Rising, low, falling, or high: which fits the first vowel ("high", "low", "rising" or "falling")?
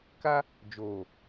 high